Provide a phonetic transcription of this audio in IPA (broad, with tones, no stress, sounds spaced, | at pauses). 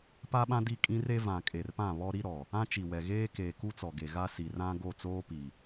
p a˦ ɓ ã˦ d i˦˨ kʼ ĩ˦ r e˦ v ã˨ kʼ e˨ r p ã˦˨ β ɔ˦ ɾ i˦ ɾ ɔ˨ | ã˦ t͡ʃ i˨ w ɛ˨ ɣ eː˦ k eː˨ k u˦ t͡s ɔ˨ ɡ e˨ ɣ a˦ s i˨ r ã˦ ɡ o˦˨ t͡s oː˦ p i˨